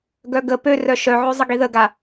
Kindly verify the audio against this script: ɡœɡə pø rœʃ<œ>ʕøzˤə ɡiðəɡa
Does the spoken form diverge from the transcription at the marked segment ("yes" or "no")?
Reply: no